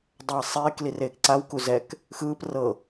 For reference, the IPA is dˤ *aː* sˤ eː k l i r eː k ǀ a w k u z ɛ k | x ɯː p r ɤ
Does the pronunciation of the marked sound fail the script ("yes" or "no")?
no